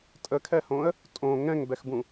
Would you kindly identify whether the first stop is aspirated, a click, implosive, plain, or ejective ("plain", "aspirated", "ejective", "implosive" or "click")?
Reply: ejective